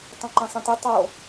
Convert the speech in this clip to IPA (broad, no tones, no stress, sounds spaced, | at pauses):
tˤ õ ǃ ẽ sˤ ẽ t i tˤ o